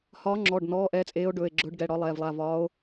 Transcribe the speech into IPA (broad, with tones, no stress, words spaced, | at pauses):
hɒː˨˦ŋ͡ǁɔː˩˧˩ɖ nɔː˩˧˩ ʔɛː˨˦t͡sʼeː˨˦o̯ɖɵː˩˧˩e̯ɡ͡ǁɵː˨˦ɖ ɡɛ˩˧˩ɽɒ˨˦lˠɛː˩˧˩vlˠa˩˧˩ vɒː˨˦o̯